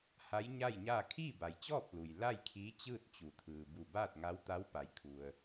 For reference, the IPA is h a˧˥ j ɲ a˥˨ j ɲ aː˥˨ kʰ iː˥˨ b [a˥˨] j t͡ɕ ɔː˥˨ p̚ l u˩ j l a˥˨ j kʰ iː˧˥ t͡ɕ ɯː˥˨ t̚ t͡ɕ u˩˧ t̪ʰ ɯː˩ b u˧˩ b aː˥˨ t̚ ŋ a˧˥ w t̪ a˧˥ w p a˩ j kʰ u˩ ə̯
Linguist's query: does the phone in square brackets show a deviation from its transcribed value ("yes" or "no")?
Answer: yes